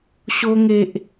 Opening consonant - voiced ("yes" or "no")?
no